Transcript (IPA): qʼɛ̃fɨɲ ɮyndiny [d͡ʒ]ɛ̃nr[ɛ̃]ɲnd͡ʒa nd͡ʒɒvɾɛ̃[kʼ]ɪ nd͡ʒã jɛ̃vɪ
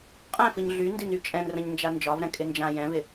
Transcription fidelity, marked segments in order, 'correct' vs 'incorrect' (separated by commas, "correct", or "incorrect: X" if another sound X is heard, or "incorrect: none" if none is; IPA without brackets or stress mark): incorrect: t͡ʃʼ, incorrect: ə̃, correct